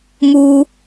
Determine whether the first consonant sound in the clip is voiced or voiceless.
voiced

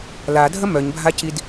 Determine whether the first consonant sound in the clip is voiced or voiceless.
voiced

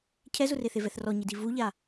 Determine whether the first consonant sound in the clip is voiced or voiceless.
voiceless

